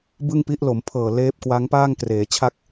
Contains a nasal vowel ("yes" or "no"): no